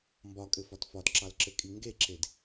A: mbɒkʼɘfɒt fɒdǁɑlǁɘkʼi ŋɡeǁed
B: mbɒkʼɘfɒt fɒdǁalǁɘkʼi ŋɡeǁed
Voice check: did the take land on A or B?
A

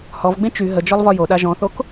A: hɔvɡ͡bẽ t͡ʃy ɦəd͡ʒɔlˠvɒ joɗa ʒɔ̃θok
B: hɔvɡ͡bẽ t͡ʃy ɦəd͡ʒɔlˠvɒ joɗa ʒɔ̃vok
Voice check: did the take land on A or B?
A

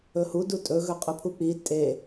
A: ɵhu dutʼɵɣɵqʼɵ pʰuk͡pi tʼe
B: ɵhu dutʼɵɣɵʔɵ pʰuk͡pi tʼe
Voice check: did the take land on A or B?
A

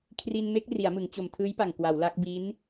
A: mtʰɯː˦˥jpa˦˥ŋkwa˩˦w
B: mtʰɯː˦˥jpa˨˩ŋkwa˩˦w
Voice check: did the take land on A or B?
B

